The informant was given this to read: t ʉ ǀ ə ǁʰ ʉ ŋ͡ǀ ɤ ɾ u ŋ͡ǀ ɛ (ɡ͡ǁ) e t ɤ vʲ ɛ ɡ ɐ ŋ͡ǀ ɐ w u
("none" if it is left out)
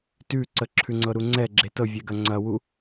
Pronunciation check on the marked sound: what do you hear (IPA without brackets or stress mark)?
ɡ͡ǁ